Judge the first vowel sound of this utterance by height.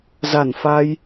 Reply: low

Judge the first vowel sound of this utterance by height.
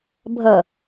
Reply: low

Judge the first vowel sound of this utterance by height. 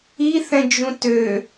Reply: high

